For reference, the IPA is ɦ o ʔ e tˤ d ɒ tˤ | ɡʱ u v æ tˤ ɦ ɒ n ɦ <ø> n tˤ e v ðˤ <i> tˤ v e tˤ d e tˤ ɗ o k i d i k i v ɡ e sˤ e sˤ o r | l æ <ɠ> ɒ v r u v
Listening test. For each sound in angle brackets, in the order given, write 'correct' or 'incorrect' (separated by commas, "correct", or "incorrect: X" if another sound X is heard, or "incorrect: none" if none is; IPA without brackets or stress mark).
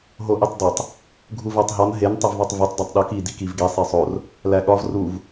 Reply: incorrect: e, incorrect: e, correct